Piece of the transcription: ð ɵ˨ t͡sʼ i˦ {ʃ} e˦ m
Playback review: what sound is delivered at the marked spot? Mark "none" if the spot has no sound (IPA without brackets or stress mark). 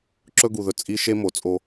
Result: ʃ